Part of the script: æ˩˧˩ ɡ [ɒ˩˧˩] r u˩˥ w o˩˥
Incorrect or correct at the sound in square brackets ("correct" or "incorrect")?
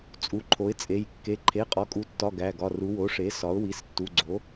correct